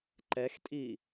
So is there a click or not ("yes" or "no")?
yes